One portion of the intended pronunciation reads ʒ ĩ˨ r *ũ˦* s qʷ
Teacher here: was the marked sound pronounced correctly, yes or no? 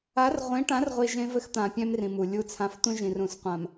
no